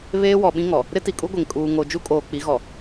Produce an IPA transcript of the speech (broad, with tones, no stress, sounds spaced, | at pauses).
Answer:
β eː˦ w ɔ˨ ɓ ĩ˦ ŋ ɔ˨ | ɾ ɪ˦ t i˨ kʼ u˦ ɡʷ e˨ ŋ kʼ uː˨ ŋ o˨ d͡ʒ u˦ kʼ oː˨ k͡p i˨˦ ɣ ɔ˨